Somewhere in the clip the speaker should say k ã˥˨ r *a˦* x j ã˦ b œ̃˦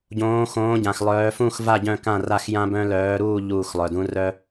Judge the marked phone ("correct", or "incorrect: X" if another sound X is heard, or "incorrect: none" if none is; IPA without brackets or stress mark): incorrect: a˥˨